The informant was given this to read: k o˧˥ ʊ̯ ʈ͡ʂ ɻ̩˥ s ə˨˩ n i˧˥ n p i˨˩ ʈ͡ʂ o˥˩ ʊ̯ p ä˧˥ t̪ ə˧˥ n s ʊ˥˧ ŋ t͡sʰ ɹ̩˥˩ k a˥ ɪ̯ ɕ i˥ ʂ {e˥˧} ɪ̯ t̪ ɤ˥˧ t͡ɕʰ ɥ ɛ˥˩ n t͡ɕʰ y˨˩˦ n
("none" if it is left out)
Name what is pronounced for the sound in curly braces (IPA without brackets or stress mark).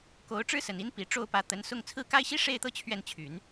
e˥˧